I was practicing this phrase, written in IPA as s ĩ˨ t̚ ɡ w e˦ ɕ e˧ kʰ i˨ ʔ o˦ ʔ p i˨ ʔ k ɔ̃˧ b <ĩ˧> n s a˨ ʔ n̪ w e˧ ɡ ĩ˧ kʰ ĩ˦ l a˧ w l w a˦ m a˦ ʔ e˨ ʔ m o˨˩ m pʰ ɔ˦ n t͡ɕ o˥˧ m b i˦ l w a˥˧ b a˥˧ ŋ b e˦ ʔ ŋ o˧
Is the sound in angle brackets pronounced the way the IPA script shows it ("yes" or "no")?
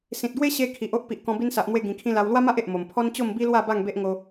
no